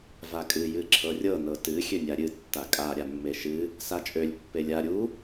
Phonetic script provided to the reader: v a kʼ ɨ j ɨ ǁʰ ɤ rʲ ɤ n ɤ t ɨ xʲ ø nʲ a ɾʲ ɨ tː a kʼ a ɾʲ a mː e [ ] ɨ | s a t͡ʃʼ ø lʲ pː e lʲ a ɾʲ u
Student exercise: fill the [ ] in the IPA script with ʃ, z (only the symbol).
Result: ʃ